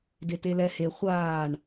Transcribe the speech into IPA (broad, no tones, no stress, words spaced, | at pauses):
detelɛ he χʷaːɳ